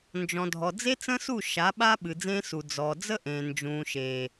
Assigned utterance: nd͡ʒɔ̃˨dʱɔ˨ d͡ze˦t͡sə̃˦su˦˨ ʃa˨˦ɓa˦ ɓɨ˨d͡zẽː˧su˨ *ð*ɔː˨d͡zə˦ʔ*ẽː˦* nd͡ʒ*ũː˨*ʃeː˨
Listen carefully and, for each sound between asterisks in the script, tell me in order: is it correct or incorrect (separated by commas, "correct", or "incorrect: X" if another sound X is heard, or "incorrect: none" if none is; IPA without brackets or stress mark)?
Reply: incorrect: d͡z, incorrect: ẽː˨, correct